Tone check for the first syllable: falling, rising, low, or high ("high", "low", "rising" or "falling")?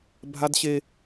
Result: high